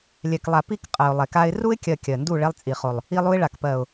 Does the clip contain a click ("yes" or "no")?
no